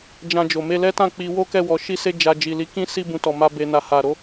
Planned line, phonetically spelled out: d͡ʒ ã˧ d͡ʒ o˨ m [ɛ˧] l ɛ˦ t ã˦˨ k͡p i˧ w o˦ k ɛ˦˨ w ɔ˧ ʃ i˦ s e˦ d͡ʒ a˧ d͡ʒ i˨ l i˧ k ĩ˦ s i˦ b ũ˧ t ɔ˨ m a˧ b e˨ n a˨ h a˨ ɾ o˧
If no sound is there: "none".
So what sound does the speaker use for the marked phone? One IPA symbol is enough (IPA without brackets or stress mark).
e˧